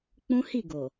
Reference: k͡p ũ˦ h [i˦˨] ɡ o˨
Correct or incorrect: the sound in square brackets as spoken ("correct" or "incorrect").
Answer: correct